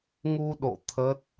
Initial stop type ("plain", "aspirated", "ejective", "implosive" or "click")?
implosive